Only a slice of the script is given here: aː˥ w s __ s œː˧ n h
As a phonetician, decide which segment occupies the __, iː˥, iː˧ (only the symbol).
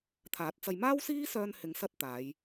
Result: iː˥